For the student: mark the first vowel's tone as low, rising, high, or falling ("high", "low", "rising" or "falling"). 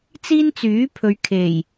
high